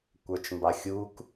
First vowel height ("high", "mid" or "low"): mid